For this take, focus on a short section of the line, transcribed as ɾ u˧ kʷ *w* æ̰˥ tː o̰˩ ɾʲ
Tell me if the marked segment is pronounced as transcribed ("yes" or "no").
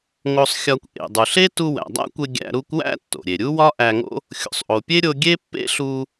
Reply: yes